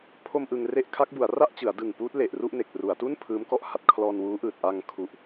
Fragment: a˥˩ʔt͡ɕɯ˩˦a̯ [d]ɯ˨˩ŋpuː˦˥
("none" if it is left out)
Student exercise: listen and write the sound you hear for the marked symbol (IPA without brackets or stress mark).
d